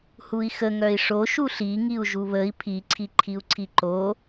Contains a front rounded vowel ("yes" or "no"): yes